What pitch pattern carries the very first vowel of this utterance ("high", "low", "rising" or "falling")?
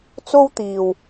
high